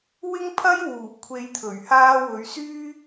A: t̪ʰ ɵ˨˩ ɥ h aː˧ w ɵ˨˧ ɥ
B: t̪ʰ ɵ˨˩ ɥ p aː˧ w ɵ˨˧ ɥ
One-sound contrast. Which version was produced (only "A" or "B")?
A